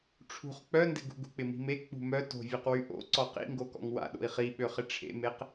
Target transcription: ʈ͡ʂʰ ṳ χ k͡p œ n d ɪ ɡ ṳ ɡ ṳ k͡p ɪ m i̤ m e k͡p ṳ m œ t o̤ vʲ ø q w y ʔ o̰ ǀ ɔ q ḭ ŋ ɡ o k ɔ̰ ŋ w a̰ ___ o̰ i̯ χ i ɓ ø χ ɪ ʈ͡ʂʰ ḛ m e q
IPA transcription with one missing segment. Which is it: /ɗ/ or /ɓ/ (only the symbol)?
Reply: ɗ